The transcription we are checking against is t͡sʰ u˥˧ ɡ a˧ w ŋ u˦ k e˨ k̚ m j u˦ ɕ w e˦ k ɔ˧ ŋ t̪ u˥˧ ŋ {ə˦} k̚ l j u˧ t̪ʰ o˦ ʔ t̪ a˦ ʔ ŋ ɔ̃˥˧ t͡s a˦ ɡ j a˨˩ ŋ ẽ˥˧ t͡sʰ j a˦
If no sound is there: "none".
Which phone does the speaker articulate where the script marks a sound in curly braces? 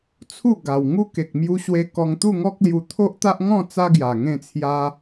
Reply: ɔ˦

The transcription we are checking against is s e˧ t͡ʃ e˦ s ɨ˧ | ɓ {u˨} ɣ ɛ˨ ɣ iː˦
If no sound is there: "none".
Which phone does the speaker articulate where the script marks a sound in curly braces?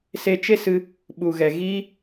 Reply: u˨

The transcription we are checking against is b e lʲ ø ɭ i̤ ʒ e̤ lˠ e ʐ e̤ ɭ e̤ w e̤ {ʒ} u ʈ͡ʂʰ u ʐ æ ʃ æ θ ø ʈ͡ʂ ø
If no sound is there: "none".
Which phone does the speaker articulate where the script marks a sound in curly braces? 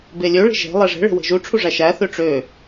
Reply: ʒ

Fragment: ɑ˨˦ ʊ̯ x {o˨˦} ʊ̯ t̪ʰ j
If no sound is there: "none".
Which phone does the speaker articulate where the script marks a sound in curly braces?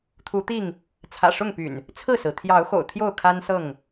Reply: o̰˨˩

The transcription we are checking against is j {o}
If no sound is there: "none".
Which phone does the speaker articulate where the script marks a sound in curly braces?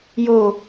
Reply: o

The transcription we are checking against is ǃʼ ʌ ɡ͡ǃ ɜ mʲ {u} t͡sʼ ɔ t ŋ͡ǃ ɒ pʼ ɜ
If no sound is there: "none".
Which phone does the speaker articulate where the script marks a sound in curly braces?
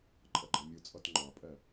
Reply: u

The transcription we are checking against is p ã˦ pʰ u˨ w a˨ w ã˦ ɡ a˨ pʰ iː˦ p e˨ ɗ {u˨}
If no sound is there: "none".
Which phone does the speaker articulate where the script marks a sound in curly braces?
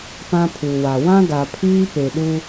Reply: u˦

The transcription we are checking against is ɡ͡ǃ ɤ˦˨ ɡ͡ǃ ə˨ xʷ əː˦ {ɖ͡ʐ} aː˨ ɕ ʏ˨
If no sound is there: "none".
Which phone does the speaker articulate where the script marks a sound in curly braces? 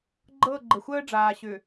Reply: ɖ͡ʐ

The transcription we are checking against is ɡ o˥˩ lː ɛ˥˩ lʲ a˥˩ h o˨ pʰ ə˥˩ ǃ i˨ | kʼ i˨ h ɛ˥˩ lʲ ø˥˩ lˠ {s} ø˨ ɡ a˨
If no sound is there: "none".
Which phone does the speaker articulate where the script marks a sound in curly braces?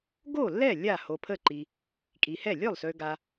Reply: s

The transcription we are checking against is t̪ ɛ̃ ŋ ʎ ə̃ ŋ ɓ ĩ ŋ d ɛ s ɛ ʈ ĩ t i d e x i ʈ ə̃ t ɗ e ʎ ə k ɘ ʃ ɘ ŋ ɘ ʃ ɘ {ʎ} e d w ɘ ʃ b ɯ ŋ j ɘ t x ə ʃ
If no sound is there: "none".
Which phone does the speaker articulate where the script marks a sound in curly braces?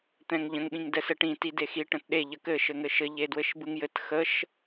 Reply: ʎ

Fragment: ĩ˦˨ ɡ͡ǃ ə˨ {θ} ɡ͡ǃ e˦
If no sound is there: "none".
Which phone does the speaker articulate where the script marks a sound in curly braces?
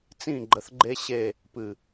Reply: θ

